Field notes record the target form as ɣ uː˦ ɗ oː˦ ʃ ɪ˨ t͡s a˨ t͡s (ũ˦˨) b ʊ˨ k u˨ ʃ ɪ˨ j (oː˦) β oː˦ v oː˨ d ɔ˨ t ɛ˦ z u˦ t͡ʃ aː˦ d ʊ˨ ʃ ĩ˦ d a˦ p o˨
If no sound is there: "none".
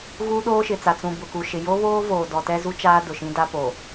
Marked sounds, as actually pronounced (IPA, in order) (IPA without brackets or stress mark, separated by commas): ũ˨, o˦